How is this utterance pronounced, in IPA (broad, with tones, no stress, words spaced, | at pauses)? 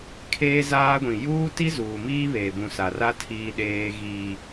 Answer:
kʰeː˦zaː˦ɡʷĩ˨ juː˦ti˦ zuː˨miː˦βeː˨bũ˨ sa˨ra˦ tʰiː˦ɗeː˦ɣiː˦